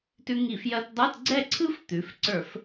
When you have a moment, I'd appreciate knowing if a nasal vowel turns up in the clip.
no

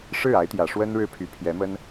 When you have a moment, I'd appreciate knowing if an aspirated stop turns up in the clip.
yes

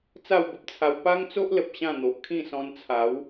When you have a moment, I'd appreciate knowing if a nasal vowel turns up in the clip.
yes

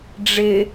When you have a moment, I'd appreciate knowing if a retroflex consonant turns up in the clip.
yes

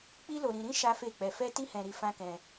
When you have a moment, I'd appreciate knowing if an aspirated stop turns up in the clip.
no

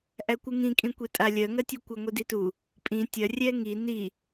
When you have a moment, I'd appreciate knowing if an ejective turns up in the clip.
yes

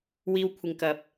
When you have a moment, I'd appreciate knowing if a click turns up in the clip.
no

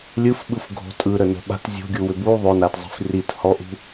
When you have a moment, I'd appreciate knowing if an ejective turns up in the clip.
yes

